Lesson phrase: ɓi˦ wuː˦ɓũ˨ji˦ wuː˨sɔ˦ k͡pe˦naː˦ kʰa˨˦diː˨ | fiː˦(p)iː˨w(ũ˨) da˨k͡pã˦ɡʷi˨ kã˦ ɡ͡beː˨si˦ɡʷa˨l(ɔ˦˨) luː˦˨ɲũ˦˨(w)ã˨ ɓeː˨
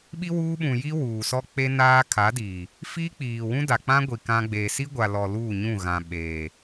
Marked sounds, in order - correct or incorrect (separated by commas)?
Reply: incorrect, incorrect, incorrect, incorrect